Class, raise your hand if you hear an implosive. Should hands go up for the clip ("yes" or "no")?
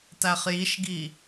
no